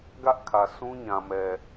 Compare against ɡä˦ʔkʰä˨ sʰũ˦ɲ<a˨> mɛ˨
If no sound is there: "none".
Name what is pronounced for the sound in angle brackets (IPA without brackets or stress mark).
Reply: ã˨